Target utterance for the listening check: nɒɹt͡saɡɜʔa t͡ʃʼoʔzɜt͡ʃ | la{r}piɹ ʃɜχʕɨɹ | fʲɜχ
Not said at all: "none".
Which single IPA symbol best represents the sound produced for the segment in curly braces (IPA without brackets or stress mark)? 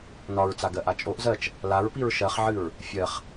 ɹ